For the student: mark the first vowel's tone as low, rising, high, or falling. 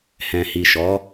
low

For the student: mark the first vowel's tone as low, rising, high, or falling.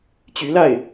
rising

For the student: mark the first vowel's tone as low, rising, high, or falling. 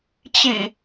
low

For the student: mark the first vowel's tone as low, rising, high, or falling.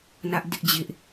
high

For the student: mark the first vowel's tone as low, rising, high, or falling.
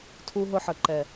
high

